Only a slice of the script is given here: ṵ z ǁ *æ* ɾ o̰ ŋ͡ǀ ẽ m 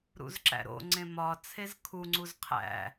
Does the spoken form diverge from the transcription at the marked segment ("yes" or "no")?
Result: yes